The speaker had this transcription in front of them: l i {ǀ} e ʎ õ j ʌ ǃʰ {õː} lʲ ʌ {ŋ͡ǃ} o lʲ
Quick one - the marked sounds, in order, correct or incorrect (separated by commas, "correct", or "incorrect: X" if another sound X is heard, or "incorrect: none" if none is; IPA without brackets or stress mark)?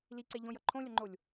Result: correct, incorrect: õ, correct